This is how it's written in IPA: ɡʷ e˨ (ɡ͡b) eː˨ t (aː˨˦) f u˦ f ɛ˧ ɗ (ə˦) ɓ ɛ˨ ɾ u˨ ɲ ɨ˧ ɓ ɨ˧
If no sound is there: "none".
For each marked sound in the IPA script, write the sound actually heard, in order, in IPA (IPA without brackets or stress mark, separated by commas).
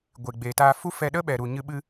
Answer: ɡ͡b, aː˧, ə˦